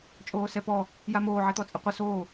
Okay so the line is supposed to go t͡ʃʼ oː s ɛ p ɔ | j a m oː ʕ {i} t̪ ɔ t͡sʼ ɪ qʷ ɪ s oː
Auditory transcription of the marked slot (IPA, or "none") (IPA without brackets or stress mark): e